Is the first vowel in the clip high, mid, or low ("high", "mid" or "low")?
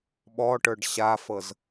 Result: mid